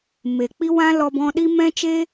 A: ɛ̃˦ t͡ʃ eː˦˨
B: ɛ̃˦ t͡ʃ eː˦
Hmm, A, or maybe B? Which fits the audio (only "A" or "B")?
B